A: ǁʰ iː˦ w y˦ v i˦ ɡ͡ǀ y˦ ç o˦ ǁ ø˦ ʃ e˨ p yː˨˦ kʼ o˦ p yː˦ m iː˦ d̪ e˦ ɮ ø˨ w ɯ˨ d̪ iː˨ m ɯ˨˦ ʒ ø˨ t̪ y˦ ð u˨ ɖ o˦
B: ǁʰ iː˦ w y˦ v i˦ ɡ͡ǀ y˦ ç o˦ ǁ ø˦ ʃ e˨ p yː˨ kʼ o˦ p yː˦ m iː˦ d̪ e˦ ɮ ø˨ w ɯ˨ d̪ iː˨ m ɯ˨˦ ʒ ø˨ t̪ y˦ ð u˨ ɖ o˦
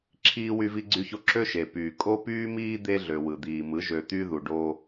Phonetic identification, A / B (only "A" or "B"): B